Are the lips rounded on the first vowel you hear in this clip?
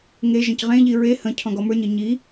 no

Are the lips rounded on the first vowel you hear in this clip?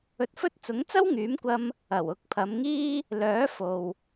yes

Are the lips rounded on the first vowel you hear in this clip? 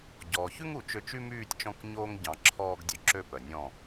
yes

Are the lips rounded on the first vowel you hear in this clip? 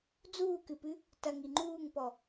yes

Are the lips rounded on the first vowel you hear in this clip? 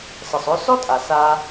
no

